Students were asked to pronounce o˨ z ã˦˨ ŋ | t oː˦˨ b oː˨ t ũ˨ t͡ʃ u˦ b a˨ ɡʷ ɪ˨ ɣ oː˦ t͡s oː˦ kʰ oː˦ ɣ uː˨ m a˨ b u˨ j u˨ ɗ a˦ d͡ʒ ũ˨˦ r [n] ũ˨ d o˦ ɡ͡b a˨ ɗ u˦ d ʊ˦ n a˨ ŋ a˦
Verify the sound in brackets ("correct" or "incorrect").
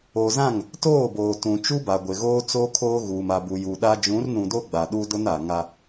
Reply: correct